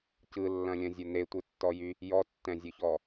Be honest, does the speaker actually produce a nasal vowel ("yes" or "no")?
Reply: yes